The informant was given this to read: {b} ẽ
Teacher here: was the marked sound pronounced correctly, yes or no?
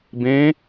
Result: yes